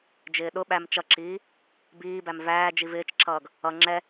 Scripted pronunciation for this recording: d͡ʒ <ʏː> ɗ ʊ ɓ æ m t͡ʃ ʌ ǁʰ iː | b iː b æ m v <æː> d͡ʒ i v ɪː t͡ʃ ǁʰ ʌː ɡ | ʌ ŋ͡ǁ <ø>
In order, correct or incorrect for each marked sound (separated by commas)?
incorrect, correct, incorrect